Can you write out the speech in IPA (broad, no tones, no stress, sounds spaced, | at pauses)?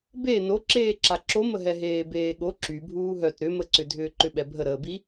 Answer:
b e n o ǁ eː ǁ a ǁ o m ə ɦ ɛ ɦ eː b eː ɠ o ǁ y bʱ uː ɦ œ t ɾ ʏ m ə ǀ ʏ dʱ ʏː ǃ ʏ ɓ ɛ bʱ ə ɾ əː b i